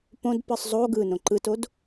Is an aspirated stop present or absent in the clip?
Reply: absent